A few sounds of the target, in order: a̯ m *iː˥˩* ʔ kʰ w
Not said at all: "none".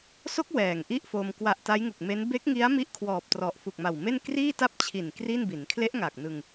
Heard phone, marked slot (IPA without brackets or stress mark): i˥˩